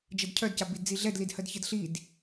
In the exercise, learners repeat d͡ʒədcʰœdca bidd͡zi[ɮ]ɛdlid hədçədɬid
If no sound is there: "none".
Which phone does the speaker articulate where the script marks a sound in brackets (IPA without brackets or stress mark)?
ɮ